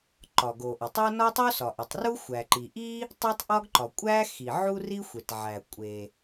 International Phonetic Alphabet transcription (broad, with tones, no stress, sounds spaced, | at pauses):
ǃ ɒ˩ ɡ o˩ ʔ ɒ˩ tˤ o˥ n ɒ˥ tˤ o˥ s ɒ˩ ʔ o˩ tˤ r u˥ xʷ æ˩ ǃ i˩ ʔ i˥ | tˤ u˥ tˤ ʔ ɒ˥ ɡ ǃ ɒ˩ kʷʼ æ˥ x i˩ ʕ u˥ r i˥ xʷ e˩ t ʕ æ˩ kʷʼ e˩